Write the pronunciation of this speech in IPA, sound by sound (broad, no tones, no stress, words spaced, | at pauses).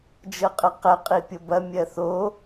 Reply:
d͡ʒɤqʼɜqɛ qʼipʲɤbɐ mʲɜθo